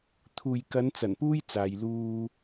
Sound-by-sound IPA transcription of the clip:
t̪ʰuː˨jkɐ˨˧nt͡sɐ˨˩n puː˥jt͡saː˨j luː˧

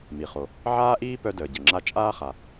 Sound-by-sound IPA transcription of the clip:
mi˩χo˩ | ʕaː˥ʔiː˥ pœ˥dəː˩ɟə˩ŋ͡ǁa˥ t͡ʃʼaː˥χa˩

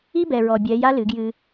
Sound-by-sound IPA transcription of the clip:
i˦bɛ˨ɹɔ˨ bʲɛ˨˦ja˦ lɨ˨˦ɡjɨ˦

